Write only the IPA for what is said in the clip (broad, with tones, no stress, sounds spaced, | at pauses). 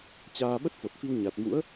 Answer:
t͡ɕ aː˧ ɓ ə˦˥ t̚ f o˨˩ t̚ f i˧ w ɲ a˨˩ t̚ m ṵ˧˥ ə̯